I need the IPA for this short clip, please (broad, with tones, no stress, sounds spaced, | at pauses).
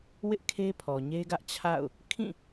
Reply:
w ɪ˦ ʔ kʰ e˦ pʰ ɔ˨ ɲ e˦ ɡ ä˦ ʔ t͡ɕʰ a̰˦˨ ʊ̯ | kʰ ĩ˦˨